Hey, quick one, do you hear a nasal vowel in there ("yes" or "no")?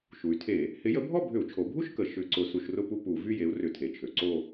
no